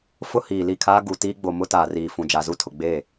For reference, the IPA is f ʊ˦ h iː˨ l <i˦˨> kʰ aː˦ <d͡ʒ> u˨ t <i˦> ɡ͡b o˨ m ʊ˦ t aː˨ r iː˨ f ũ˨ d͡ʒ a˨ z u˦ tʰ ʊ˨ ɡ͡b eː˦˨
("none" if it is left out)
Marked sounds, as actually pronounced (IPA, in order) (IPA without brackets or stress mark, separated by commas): i˦˨, ɡ, iː˦